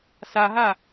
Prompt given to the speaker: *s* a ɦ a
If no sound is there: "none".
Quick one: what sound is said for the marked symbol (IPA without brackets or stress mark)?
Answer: s